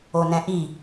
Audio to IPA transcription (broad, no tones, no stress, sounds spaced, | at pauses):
o n ɛ̃ ʔ i